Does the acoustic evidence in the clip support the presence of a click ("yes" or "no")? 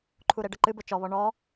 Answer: yes